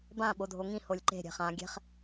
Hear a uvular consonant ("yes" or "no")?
yes